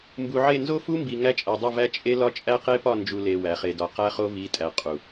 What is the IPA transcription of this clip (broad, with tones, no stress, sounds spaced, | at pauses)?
m b u˨ ʕ e˦˨ n z o˦ f u˦ m b i˨ ŋ æ˦˨ t͡ʃʼ æ˨ dˤ o˦˨ v æ˦ t͡ʃʼ e˦ l ɒ˦ t͡ʃʼ æ˦ q e˦ p ɒ˦˨ n d͡ʒ u˨ l e˨ w æ˨ χ e˨ d ɒ˨ q æ˦ χ o˦ v i˨˦ tʼ æ˨ qʼ u˨